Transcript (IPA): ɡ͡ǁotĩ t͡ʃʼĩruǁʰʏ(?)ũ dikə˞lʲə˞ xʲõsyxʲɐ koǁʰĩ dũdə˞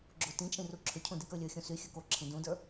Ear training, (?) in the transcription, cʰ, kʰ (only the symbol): cʰ